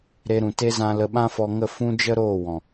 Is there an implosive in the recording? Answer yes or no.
yes